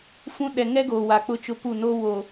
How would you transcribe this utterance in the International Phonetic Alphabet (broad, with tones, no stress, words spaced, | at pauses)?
fũ˦ ɗɛ˨ŋɛ˦ɡoː˨ wa˨k͡pʊ˦t͡ʃʊ˦ pu˦˨no˦wo˨